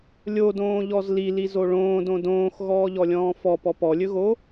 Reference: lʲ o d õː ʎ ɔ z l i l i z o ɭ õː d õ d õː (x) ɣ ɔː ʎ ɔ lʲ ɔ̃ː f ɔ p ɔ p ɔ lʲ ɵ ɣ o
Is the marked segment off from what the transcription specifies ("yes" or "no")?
no